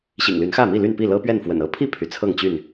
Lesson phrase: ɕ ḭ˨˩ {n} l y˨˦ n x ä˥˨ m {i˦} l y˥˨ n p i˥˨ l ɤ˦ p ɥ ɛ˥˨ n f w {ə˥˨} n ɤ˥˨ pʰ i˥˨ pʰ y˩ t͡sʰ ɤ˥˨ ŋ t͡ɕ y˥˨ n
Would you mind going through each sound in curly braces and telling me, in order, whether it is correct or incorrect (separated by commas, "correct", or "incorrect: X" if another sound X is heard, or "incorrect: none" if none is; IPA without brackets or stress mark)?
incorrect: ŋ, incorrect: i˥˨, incorrect: ə̰˨˩